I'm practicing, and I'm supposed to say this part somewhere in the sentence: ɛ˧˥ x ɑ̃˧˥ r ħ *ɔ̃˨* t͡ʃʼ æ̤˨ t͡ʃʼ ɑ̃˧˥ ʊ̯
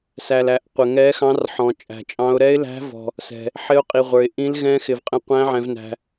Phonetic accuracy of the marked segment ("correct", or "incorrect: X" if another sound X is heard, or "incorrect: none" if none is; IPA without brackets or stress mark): correct